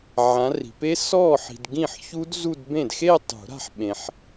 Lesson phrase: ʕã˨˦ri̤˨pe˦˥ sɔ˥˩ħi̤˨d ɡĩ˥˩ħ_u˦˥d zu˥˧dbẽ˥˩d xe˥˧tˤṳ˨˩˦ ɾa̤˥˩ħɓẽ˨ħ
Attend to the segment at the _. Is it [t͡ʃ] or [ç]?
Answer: ç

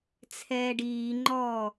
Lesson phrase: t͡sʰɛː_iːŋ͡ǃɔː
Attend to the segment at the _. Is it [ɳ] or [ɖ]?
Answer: ɖ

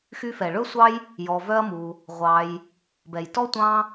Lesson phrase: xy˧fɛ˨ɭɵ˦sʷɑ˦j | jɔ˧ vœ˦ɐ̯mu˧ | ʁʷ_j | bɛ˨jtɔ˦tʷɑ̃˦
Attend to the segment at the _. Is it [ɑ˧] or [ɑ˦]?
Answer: ɑ˧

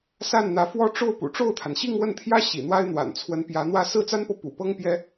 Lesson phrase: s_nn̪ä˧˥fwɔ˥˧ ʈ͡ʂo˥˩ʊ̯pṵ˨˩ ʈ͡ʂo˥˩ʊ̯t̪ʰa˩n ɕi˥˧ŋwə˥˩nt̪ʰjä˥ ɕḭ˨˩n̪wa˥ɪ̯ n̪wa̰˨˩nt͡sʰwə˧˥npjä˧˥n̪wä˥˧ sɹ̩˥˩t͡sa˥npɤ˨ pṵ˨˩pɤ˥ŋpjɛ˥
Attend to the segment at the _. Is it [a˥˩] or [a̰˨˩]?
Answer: a˥˩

